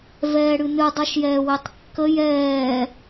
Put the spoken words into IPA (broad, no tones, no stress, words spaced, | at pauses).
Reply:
vɛːɽɨnɨ dˤʌʃjɛːwetˤkːə jɛː